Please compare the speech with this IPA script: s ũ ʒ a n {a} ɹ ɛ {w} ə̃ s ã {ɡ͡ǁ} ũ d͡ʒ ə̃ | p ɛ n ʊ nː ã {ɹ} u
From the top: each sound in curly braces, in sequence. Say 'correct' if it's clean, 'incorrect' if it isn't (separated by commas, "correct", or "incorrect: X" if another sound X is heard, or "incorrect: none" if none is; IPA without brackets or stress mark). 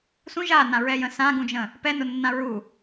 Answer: incorrect: ã, incorrect: j, incorrect: ɡ, correct